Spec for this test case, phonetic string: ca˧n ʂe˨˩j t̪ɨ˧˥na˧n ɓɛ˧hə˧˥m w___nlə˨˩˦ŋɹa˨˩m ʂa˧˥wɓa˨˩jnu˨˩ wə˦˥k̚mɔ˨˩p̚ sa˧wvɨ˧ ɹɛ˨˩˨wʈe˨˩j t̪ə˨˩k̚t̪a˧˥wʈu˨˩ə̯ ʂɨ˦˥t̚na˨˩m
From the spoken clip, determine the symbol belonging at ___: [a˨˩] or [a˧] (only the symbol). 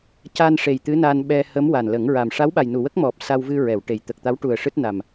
a˨˩